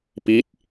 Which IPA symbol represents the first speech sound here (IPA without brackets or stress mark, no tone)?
p